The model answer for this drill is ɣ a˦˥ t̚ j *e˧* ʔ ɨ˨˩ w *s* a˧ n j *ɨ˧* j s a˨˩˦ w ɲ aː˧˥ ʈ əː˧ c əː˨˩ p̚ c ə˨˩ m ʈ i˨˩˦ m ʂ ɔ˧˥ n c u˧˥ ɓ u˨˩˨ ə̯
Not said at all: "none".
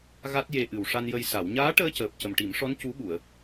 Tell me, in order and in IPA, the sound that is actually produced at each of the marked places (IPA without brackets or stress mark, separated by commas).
e˧, ʂ, ə˧